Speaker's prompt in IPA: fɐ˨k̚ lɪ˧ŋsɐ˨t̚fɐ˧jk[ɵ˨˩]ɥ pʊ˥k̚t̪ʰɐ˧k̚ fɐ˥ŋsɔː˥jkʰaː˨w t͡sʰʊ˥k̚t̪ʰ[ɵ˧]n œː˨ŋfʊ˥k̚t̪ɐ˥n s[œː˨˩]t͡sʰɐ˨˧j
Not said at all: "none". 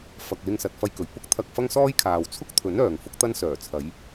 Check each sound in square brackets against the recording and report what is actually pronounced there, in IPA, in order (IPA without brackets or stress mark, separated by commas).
ɵ˨˩, ɵ˨˥, œː˨˩